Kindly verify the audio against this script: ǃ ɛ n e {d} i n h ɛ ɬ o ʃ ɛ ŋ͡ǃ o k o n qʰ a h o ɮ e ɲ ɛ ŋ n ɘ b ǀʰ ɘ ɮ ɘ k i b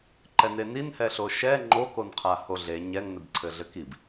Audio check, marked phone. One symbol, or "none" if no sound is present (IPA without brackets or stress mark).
n